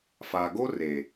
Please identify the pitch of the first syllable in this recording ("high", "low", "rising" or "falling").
low